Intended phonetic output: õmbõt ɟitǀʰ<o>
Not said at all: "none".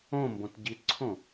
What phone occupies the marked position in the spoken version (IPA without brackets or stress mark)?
õ